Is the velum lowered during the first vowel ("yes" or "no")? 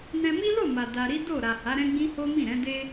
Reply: yes